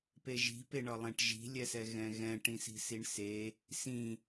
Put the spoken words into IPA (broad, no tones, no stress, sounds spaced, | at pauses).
p e ʒ i̤ p e ɳ ɒ lˠ ɛ̃ ʈ ʒ i̤ lʲ ɛ s ɛ ɣ ɛ̃ ɣ ɛ̃ ʈ ĩ s i̤ s i ɳ s e | s ĩ